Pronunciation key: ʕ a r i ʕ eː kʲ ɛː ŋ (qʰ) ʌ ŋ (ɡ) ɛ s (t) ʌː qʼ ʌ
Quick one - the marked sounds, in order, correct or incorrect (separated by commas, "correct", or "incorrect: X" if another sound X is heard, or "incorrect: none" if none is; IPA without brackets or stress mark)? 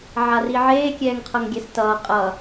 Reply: correct, incorrect: ɡʲ, correct